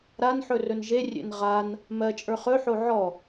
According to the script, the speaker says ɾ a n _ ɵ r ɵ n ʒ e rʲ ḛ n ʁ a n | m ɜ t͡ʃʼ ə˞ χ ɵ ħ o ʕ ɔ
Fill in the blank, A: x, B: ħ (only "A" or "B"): B